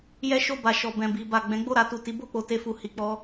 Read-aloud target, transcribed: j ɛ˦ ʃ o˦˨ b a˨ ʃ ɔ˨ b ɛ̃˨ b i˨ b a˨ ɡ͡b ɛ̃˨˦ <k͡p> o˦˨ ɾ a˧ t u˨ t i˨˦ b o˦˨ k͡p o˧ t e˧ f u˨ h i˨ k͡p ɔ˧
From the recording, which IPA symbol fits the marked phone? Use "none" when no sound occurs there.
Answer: ɡ͡b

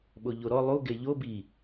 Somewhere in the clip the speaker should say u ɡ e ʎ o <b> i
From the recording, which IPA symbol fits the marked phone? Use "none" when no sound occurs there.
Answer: b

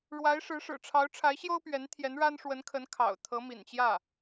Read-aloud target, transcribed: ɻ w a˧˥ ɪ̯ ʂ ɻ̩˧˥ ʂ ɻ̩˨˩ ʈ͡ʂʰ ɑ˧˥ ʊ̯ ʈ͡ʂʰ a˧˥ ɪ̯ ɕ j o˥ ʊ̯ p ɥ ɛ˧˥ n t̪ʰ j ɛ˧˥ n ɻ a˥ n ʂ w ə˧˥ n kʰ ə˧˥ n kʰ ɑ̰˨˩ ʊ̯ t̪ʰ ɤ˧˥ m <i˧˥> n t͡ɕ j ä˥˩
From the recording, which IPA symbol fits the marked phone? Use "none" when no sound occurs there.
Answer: ḭ˨˩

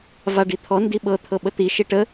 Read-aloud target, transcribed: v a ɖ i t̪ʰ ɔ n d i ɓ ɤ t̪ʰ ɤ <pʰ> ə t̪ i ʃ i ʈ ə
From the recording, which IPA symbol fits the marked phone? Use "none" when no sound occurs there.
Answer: ɓ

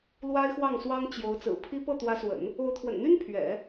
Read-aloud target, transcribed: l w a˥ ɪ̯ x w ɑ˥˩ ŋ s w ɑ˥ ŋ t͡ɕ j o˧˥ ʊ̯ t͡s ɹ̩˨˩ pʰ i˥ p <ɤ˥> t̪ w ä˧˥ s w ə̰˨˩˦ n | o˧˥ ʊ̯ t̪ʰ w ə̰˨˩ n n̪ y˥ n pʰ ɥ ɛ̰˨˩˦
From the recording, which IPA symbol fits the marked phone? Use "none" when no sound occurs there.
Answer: ɤ˥˩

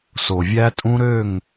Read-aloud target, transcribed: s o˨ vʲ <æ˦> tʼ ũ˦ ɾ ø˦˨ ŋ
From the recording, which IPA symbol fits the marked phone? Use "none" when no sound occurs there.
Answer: æ˦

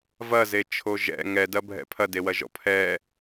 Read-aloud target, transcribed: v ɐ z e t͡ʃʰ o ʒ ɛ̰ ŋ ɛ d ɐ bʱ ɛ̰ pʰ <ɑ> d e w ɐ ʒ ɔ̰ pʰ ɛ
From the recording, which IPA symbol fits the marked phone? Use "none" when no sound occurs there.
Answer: ɐ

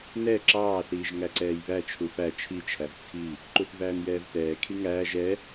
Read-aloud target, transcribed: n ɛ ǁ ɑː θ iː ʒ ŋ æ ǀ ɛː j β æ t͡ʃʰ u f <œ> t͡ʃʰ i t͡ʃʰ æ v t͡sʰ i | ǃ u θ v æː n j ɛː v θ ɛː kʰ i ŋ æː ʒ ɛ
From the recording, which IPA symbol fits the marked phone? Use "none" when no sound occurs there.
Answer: æ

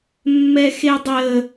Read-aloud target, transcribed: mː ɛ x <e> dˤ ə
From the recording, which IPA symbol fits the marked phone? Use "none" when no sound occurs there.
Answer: e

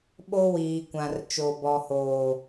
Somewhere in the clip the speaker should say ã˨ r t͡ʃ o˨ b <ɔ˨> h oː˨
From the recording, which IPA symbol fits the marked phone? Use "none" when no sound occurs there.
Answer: ɔ˨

